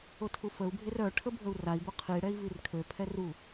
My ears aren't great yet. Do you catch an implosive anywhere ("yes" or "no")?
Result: no